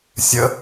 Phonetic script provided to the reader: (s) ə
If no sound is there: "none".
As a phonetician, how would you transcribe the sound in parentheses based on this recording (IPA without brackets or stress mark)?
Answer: sʲ